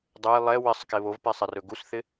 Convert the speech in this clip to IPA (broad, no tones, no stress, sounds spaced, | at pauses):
dˤ ɛ j lˠ ɛ w ɪ sˤ k e β o v p e sˤ ɪ r ɵ ɡ u s θ ɪ